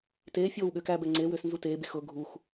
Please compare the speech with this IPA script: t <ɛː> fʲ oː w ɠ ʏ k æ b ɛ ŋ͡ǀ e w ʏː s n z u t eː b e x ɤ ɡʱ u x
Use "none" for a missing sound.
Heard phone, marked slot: eː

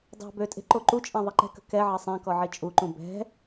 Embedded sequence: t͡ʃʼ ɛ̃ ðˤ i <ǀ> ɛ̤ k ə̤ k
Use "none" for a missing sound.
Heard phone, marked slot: ǃ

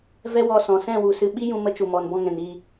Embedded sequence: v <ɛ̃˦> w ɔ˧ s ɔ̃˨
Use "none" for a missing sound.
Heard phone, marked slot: ɛ˦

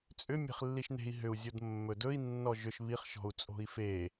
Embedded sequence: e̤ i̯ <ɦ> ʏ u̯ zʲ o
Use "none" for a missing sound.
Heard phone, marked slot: ɦ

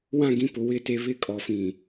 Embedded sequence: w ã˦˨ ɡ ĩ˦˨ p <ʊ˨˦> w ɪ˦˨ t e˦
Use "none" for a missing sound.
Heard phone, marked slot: ʊ˨˦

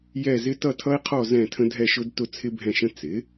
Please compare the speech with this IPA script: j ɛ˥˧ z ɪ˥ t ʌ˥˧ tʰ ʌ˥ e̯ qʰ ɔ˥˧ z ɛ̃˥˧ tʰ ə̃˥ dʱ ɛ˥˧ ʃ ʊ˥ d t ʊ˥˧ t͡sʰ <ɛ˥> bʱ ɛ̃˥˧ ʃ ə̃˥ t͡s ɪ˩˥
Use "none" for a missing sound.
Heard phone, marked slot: ɪ˥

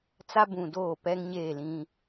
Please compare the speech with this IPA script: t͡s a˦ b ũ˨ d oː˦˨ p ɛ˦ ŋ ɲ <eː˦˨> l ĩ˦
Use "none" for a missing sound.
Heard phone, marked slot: eː˦˨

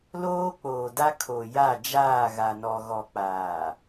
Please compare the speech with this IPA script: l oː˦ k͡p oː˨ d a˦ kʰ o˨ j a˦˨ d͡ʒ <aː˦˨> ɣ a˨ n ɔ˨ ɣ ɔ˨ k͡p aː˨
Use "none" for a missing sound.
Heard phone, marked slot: aː˦˨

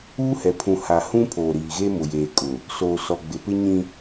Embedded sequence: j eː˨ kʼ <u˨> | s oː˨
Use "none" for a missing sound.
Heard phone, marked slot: ʊ˨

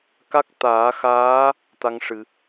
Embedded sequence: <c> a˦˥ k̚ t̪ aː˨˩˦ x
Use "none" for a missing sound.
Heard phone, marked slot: k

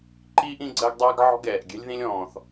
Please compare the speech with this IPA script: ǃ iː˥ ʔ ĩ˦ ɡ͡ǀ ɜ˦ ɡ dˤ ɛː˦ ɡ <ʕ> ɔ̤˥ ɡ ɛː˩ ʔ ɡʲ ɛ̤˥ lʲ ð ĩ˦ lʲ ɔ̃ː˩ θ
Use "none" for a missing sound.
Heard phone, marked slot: ʕ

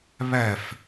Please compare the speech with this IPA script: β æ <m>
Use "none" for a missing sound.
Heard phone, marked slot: f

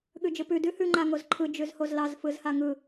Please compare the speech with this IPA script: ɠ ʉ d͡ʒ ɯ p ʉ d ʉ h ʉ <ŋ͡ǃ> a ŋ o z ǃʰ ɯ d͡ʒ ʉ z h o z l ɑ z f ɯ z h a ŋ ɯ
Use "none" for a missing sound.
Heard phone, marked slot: ŋ͡ǃ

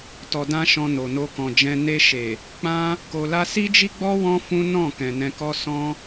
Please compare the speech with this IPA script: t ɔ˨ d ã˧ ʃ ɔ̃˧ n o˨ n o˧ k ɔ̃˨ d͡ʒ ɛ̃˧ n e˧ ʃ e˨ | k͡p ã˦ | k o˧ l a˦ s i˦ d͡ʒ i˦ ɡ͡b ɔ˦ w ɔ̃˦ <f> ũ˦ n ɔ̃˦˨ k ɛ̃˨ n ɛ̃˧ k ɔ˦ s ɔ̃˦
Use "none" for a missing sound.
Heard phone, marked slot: f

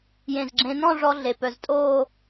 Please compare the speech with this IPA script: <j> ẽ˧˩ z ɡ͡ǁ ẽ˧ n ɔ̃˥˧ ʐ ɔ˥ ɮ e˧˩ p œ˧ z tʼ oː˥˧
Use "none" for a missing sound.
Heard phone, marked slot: j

